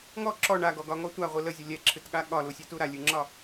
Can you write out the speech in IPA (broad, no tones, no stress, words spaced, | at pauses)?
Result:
ŋɔ ǁɔ ɳaɡɔɡɒŋɔ tʷaʁʷɨ ləzʲə lʲɛǁʰɨtɠa ɠɒlusʲetu ɾalʲɨŋ͡ǁɒ